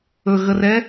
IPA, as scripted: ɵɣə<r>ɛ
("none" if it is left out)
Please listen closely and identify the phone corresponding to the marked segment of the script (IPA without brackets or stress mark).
r